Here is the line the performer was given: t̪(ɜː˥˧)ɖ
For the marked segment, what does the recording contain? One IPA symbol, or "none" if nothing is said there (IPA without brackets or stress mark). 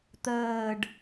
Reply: ɜː˥˧